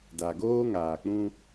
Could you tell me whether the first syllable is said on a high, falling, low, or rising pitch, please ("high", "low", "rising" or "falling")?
low